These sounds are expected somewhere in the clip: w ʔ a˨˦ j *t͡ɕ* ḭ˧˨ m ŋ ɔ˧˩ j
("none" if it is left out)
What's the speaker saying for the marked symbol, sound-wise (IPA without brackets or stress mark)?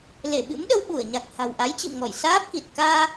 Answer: t͡ɕ